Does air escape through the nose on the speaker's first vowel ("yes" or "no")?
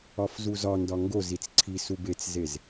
no